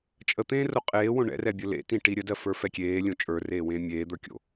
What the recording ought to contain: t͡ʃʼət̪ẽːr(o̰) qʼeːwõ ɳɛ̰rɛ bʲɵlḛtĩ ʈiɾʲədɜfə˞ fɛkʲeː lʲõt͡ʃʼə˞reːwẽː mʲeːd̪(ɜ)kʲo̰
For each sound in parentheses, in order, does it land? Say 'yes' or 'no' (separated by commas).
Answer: no, no